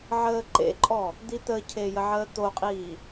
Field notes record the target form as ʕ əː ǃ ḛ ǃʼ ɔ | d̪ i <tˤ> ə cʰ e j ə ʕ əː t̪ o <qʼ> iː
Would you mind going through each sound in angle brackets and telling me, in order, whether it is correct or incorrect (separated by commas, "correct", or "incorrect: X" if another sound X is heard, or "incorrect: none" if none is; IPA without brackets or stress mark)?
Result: incorrect: t̪, correct